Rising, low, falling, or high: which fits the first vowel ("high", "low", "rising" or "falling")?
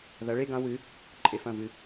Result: rising